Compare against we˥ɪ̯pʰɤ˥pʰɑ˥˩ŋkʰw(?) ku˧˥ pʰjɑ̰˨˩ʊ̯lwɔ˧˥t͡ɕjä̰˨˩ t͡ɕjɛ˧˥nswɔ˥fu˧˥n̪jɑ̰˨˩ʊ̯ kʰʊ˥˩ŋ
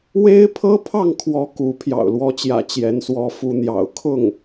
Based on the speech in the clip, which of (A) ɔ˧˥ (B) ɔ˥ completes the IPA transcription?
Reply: A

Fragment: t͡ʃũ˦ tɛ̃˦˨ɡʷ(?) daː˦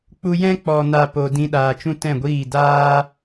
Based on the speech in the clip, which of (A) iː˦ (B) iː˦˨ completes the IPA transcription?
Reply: B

